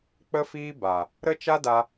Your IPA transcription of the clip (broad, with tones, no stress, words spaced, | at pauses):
k͡pə˦fiː˦ba˨ | ɾə˦t͡ʃa˦da˧